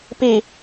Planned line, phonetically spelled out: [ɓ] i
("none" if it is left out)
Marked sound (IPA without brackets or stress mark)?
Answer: p